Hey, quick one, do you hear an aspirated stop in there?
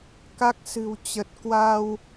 no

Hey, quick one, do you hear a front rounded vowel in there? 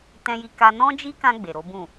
no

